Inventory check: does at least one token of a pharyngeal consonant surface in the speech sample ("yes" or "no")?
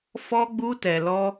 no